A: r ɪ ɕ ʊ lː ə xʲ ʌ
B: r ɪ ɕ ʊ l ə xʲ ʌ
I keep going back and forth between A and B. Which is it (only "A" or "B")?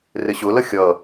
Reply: B